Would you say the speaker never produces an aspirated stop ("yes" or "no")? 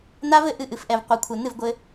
no